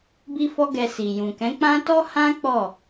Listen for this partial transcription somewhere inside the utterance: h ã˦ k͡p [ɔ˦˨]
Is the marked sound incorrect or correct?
correct